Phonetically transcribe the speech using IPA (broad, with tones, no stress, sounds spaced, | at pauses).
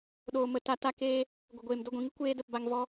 ɗ oː˨ m ə˨ t a˧ t a˦ k eː˦ | ɡʷ ə˨ ɡʷ eː˨ m d o˧ ɡʷ ĩ˨ ŋ ɨ˦ kʷ eː˦ d ə˦˨ p b a˧ ŋ v ɔ˦